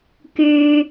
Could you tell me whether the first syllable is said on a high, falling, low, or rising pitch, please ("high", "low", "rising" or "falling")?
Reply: high